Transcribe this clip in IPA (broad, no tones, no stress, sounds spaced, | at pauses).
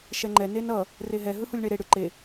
ʃ ɛ ŋ͡ǃ ɛ n e n ʌ | r e ɦ ɛ ɦ ɯ h u lʲ ɳ e ɾ e ɽ ɯ ǃ e